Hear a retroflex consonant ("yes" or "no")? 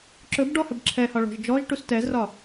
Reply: yes